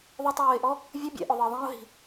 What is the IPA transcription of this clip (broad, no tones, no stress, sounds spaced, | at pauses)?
ðˤ ʊ tˤ oː ɪ̯ ʔ ɔ | vʲ ʊ bʲ ɛ̰ ʔ ʊ ðˤ ɪ ə̯ ðˤ ĩ ʊ̯ ɦ i̤